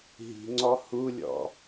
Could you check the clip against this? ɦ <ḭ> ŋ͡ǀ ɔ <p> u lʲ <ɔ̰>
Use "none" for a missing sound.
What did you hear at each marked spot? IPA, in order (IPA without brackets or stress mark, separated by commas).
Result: i̤, h, ɔ̰